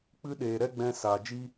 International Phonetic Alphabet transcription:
k͡p ɨ˧ ɗ eː˨ ɾ ɛ˦ ɡ͡b ɛ̃˧ s aː˨ d͡ʒ i˦

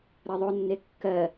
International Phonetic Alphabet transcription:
ɾ ɜ ðˤ o nː e kː ɜ

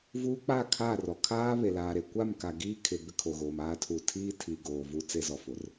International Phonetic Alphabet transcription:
v uː˦ k͡p a˦˨ kʰ aː˦˨ r ɔ˨ kʰ aː˦ β e˨ l aː˨ ɾ e˨ kʷ a˦˨ m k a˨ ɡ iː˦ kʰ ɪ˨ b ɪ˦ kʰ o˨ ɣ oː˨ m aː˦ tʰ u˨ tʰ iː˦ tʰ i˨ ɡ oː˨ v u˦ t͡s e˦ z ɔ˨ f ʊ˨ r

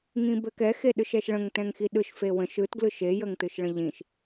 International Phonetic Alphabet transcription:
ŋ ĩ b ɘ k ɛ x e ɗ ɯ ʃ ɛ ʃ ɭ ə̃ ŋ t ɛ̃ ŋ x i ɗ ɯ ʃ f e w ə̃ ʃ ɯ t ɡ l ɯ ʃ e j ə ŋ t ɯ ʃ ɭ ə̃ ʎ ĩ ʃ

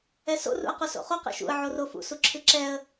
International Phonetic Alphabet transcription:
ɛ s o̰ r ṵ ə̯ q u s o̰ χ o q ɛ̰ ʃ ṵ ə̯ ʕ o r o f ṵ s u ǁʰ ɨ ǁ ɛ ə̯

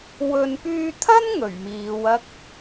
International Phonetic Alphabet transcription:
w ɵ˨ n p yː˧ t̪ʰ ɐ˥ n ŋ ɵ˨˩ ɥ m iː˨˧ w ɐ˥ k̚

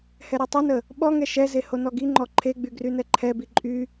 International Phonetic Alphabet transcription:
h ɛ ɾ e tˤ e n ə | ɓ ɔ ŋ ɛ ʃ ɛ z e h o n ɔ ɡ i ŋ͡ǃ ɔ ǃʰ e ɡ͡b y ɡ r y n ɛ ǃʰ ɛ b i ǃʼ y

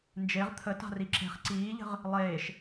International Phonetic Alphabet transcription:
n d͡ʒ e ʁ t̪ʰ ə t a̤ r i ǁ e̤ χ ǀ iː ʎ ə̤ ʁ | lˠ eː ʃ

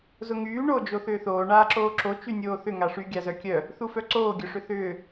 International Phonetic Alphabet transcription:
z ʊ ŋ yː ɳ oː d͡ʒ o θ ʏː θ oː ɳ aː ǁ oː ǁ o t͡ʃ y nʲ oː θ ʏ ŋ a ʂ y ɡʲ a z œ kʲ œ | θ u f œ ǀ oː ɡʲ ʊ ʂ ʏ θ ʏː

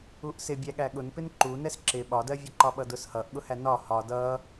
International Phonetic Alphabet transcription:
u ʔ s ɪ bʲ æ ɠ æ ɠ ʊ n p ɪ n ǃ u n ɛ s ǁ ɪ ɓ ɒ d ɜ vʲ ə ǃ ɒ ɓ ʌ d ʊ s h ʌ ʔ ɠ ʊ h æ n ɒ h ɒ d ʌ

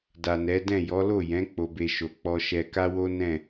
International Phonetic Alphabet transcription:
d a˨ n ɛ˨˦ d ɛ̃˦˨ j ɔ˨˦ l o˦˨ j ɛ̃˨˦ k͡p o˧ b e˧ ʃ o˨ k͡p ɔ˧ ʃ ɛ˧ k a˦ w o˦ n ɛ̃˦˨

